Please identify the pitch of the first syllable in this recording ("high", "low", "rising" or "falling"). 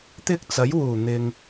high